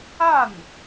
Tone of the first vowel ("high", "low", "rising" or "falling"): falling